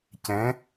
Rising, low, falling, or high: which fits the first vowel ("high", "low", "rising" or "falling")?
rising